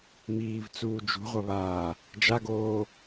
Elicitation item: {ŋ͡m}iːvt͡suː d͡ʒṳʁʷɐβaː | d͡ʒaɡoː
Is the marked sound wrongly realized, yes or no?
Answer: yes